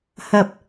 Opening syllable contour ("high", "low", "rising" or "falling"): low